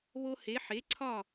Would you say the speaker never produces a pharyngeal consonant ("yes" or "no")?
no